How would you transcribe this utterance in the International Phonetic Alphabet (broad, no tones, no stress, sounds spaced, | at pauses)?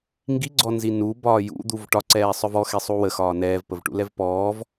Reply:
ŋ ɡ i ɡ͡ǀ ɔ n z i n u b ɒː j ṵ d̪ u v ʈ ɒ ǀ ɛː sˤ œ v ɔ x e sˤ u w ə x ɒː n ɛː v p ə v ʈ ṵ l ɛ v p ɔː v